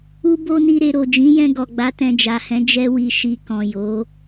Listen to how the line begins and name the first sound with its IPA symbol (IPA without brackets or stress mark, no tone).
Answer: u